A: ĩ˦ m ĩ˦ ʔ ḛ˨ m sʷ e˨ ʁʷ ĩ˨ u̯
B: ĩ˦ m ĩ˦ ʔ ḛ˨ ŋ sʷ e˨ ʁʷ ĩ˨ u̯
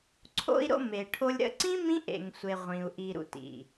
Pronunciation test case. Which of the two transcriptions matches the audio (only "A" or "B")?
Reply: B